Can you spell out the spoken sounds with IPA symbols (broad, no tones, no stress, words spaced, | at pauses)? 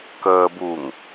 kəːbuːŋ